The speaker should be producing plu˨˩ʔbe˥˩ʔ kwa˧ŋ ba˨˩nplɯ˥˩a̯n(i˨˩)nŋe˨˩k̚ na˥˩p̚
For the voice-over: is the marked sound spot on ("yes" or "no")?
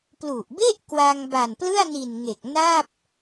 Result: yes